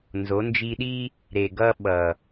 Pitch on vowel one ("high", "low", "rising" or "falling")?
rising